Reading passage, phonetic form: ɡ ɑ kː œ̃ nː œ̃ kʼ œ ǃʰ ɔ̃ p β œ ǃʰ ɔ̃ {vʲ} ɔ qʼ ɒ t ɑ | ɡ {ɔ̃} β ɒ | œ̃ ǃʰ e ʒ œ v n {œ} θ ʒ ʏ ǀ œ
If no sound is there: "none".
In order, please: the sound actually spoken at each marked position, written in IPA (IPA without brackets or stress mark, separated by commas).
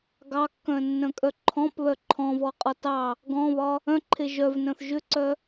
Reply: v, ɔ̃, œ̃